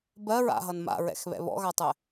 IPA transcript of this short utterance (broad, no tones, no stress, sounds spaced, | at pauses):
b ɜ ɹ a̰ ɦ ʌ n m a̰ ɹ ɛ̰ x β ɛ̰ β ɔ̰ ɣ a tˤ ɛ